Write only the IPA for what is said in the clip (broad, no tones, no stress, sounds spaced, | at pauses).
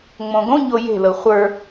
ŋ͡m õ ɡ õ ɲ o j e̤ l ɤ χʷ ə˞